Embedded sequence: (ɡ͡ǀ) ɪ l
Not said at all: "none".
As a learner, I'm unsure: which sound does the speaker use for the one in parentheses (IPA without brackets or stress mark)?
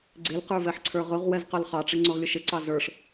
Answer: ɡ͡ǀ